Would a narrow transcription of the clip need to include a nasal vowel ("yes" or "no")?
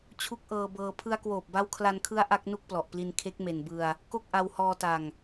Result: no